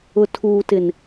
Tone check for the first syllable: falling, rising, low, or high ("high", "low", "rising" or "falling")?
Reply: low